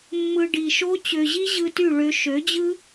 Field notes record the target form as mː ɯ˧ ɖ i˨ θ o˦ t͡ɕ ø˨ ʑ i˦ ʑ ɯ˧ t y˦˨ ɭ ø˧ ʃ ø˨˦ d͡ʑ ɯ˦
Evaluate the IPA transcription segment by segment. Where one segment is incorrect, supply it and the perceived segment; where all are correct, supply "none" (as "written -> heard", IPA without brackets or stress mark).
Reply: θ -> ʃ